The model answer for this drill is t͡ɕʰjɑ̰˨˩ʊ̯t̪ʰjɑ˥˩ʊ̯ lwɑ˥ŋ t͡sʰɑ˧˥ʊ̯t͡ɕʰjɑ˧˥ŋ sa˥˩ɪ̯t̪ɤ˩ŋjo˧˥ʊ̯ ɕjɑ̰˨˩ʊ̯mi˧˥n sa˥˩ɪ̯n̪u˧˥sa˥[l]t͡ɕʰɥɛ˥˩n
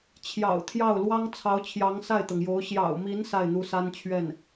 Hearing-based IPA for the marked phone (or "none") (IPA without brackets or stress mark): n